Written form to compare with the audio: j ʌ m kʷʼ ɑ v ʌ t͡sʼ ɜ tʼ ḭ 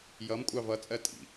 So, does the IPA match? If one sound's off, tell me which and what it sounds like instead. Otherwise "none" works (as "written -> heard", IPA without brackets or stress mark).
none